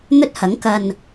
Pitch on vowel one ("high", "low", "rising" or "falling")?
high